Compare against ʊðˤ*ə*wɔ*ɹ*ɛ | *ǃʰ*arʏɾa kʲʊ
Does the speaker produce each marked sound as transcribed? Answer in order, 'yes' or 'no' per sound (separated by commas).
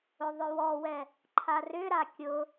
no, no, yes